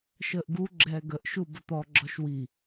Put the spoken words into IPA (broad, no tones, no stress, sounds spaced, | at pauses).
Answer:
ʃ əː ʔ ɡ u ɡ͡ǁ ɛː ɡ ə ʔ ʃ u b ə t̪ ɔ ɡ͡ǁ ɔ ʃ w i